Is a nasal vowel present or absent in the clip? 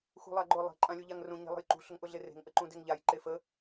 present